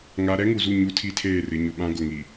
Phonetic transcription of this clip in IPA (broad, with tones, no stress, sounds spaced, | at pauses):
ŋ a˦ ɾ ɛ˦ ŋ u˨ z u˦˨ ɲ u˦ tʰ i˦ tʰ eː˦˨ r ɪ˨˦ ɲ ʊ˨ ɓ ã˦ ɡ ʊ˨ ŋ i˨